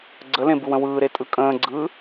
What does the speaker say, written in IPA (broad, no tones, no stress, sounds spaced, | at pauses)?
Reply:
ɡ͡ǀ ə l ẽ b ɯ w ə̃ w ɯː ɾ e tʼ ɯ kʼ ə̃ː ɡ͡ǀ ɯː